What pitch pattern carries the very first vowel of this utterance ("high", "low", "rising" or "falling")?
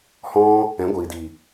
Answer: high